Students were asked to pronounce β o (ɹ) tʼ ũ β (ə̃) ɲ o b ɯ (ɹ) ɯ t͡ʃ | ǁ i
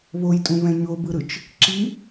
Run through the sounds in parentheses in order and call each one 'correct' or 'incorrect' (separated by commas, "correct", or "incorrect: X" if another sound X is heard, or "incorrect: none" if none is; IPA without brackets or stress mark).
incorrect: j, incorrect: ɛ̃, incorrect: ɾ